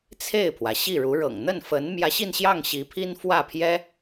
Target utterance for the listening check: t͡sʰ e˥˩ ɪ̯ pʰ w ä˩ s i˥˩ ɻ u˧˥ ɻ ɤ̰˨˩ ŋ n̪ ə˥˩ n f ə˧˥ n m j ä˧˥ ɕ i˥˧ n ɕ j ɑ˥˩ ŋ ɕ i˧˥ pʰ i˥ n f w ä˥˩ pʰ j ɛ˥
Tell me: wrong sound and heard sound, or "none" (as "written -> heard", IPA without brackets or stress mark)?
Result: s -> ɕ